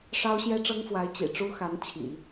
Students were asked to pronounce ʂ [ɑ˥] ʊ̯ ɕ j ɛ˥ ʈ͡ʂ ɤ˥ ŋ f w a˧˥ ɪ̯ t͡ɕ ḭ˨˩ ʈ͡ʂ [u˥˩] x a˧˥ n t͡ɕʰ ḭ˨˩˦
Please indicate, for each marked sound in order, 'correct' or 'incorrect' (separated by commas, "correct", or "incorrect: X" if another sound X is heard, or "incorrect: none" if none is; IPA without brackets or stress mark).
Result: correct, incorrect: u˥